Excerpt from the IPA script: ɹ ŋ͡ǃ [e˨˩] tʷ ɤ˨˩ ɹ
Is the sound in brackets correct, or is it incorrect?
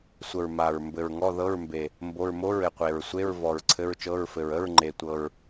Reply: correct